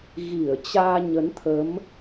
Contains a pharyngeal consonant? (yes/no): no